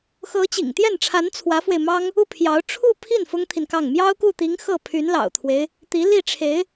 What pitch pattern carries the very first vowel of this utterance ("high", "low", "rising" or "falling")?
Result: rising